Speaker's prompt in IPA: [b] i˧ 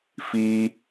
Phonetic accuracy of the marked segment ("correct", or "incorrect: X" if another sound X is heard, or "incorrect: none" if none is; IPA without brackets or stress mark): incorrect: f